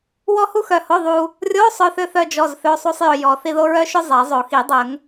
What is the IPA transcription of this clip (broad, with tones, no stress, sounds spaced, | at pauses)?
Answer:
w ɔ˥ h u˥ x œ˧ h o˧˥˧ ðˤ u˧ | rʲ o˧˥˧ sˤ œ˧ θ ʏ˧ θ œ˥ d͡ʒ ɔ˧˥˧ z θ ø˧˥˧ sˤ u˥ sˤ j ʏ˧ j ɔ˨˩˦ θ i˧ ð o˥ ɹ œ˥ ʃ ʊ˥ zˤ ɛ˨˩˦ zˤ o˨˩˦ x i˨˩˦ dˤ ə˨˩˦ ŋ